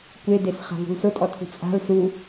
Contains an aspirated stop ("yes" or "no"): yes